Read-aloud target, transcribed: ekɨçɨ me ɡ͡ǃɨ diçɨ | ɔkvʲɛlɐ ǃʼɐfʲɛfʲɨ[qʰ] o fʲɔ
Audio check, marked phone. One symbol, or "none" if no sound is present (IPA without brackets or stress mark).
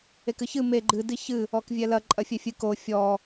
k